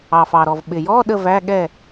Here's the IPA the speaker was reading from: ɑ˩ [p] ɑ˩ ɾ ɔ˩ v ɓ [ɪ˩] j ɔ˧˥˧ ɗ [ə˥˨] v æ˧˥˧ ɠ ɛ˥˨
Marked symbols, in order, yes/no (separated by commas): no, yes, yes